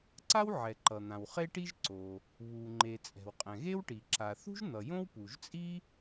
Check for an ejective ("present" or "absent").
present